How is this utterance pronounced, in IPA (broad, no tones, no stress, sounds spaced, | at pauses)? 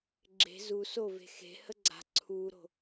ɡ͡ǁ e̤ z u s o v e̤ x e̤ h ə ɡ͡ǀ a̤ ǀʰ u ɾ o̤